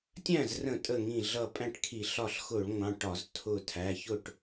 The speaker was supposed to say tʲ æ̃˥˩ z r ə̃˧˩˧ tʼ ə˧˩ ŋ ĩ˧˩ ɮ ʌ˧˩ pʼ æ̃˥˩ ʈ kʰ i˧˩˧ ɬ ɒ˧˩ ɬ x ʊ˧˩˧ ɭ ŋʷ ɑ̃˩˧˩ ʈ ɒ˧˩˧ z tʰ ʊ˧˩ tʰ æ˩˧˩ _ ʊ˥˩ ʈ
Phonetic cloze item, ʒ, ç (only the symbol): ç